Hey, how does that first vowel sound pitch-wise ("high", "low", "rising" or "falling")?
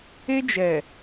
high